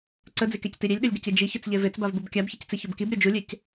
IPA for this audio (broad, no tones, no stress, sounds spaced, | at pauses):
ǀ ə d͡z i k e c t i ɾʲ e lʲ ɗ ɵ lʲ ɡ ə c i d͡ʒ i ç ɵ t͡s ʎ e v e t͡s b a v b u b kʲ a b ç ə c t͡s i ç o b k i b ɾʲ o d͡ʒ u lʲ e c